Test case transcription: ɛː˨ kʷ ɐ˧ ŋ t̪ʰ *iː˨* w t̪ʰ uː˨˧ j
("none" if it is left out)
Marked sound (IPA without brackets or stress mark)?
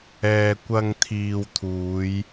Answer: iː˨